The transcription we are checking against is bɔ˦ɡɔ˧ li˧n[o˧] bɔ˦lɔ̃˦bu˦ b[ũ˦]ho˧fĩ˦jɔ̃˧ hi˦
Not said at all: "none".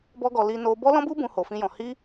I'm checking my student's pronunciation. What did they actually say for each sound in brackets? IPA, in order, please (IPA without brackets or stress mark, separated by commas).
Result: o˧, ũ˦